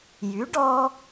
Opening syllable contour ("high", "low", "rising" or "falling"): rising